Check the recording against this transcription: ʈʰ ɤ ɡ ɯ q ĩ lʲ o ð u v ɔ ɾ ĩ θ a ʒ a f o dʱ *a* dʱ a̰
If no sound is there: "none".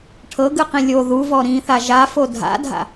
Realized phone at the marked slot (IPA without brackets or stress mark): a̰